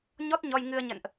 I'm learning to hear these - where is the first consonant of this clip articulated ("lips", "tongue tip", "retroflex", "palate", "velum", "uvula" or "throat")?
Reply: palate